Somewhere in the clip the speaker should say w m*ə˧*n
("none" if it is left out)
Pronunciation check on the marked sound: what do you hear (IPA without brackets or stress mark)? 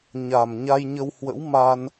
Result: a˧